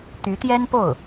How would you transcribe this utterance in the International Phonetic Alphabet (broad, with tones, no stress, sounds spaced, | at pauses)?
t̪ y˧˥ t̪ j ɛ˥ n p o˥˩ ʊ̯